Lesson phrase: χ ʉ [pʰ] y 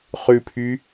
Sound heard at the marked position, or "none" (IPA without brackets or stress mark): pʰ